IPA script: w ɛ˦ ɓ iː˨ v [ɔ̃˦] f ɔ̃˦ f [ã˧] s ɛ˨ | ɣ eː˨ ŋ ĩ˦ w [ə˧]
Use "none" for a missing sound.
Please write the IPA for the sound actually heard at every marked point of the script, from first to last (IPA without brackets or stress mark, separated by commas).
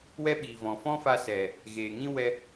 ɔ̃˨, a˧, ɛ˧